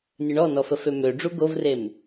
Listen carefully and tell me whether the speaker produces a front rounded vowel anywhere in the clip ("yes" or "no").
yes